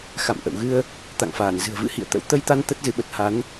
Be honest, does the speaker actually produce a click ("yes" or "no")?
no